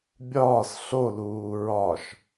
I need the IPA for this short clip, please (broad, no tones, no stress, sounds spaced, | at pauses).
bʲ ɒː s ɬ o l uː ɹ ɒ ʃ